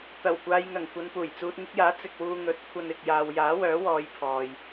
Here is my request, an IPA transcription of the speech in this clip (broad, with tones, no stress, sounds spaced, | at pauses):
t̪ ɐ˨˩ w kʷ aː˨ j ŋ ɐ˨˩ ŋ kʷ ɐ˨ n p uː˨˩ j t͡s uː˨ t̚ ŋ ɪ˧ k̚ j aː˨˥ t͡s ɪ˨ k̚ w uː˧ ŋ ɵ˨˥ t̚ kʷʰ ɐ˧ n ɪ˨ k̚ j aː˨ w j aː˨˥ w œː˨˥ w ɔː˨˧ j pʰ ɔː˨ j